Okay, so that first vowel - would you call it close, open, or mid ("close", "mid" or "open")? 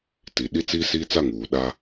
close